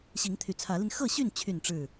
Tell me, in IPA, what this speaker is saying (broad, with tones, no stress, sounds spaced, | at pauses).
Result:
ɕ i˨˦ ŋ t̪ʰ y˨˩ t͡sʰ ä˨˦ l i˧ n x ɤ˥˨ ɕ y˥˨ n t͡ɕʰ y˥˨ n ʈ͡ʂ ɻ̩˥˨